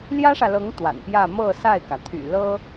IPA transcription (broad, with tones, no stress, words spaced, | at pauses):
ljä˥ʂä˨lɤ˧˥ŋ t̪wa̰˨˩npjä˥˧ mɤ˥˧sa˥˩ɪ̯kä˩ t̪ʰy̰˨˩ lɤ˥